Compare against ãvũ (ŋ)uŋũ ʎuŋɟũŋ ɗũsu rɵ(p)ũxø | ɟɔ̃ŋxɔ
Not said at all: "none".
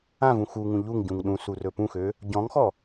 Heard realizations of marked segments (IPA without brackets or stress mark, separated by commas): x, p